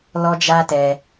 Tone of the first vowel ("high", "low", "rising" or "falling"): high